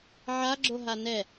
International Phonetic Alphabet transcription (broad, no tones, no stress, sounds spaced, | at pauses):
ʕ a ɡ͡ǁ o ɦ a n ɛ